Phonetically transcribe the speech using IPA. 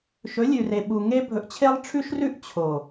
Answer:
ʃ ɵ˨˦ lʲ ʉ˨ r e˨ ɓ u˨ ŋ e˦ bʱ ɵ˨ ʔ t͡ɕʰ e˦ lˠ ʈ͡ʂʰ ʉ˦ ʃ r ʉ˦ ʔ t͡ɕʰ o˨

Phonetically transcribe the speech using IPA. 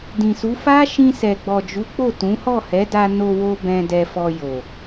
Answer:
d ĩ˨ s u˨˦ f a˦ ʃ ĩ˧ s ɛ˨ ɡ͡b ɔ˨ d͡ʒ u˨˦ k͡p o˦˨ t ũ˨˦ h ɔ˦˨ h ɛ˨˦ d a˧ n o˧ w o˧ b ɛ̃˧ d ɛ˧ f ɔ˧ j o˨

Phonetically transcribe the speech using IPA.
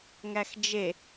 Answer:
ŋ æ x d͡ʒ e

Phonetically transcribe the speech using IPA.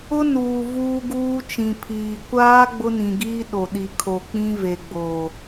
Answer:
ʊ˦ n uː˨ v uː˦ ɡ uː˦ t͡ʃ ĩ˨ pʰ iː˨ kʷ aː˦ ɡ͡b ʊ˦ n ĩ˨ ɡ iː˦ ɗ o˨ ɗ i˨ kʰ o˨ k͡p ĩ˦ v e˨ ɡ͡b o˨

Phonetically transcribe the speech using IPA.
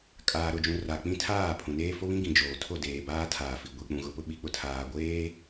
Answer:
kʼ aː˨ ɾ ʊ˨ d͡ʒ ũ˨ r a˨ k͡p ĩ˦ tʰ aː˦˨ pʰ ũ˨ n eː˦ f o˦ β ĩ˦ ɡ ĩ˨ d͡ʒ oː˨ tʰ o˦˨ d eː˨ b aː˦ tʰ aː˨ f i˨ ɡʷ i˨ k͡p ũ˨ ɣ ʊ˨ p ʊ˦ ɓ i˨˦ k͡p ʊ˨ tʰ aː˨ ɡʷ eː˦

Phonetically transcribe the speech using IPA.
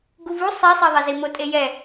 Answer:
ɡ u v u sˤ ɛ sˤ e ðˤ ɛ z i m o tʼ e j ɛ

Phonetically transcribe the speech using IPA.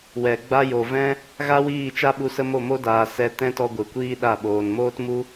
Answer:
w ɛ˨ ɡ͡b a˦ j o˨ v ɛ̃˦ | ɣ a˦ w iː˦˨ t͡ʃ a˦ ɓ u˧ s ə˦ m o˦˨ m o˦ d aː˧ s ɛ˦ t ɛ̃˦ t ɔ˧ ɡʷ ɨ˨ kʷ iː˦ ɗ a˦˨ ɓ oː˧ n m oː˦ t m u˦

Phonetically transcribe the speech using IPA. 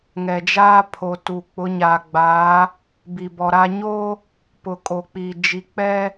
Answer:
ŋ ɛ˨ d͡ʒ aː˦ pʰ o˨ t u˨ k͡p ʊ˨˦ ɲ aː˨ ɡ͡b aː˨˦ | b i˨ b ɔ˨ ɾ a˦ ɲ o˦ | p ʊ˨ kʼ o˨ k͡p iː˨ d͡ʒ i˨ k͡p ɛ˦

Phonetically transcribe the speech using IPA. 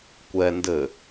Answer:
kʷ ɛ n d ɘ

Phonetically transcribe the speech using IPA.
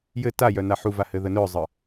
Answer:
j ɘ t a j œ n a ħ u v a h ɘ ð ə n œ zˤ ə

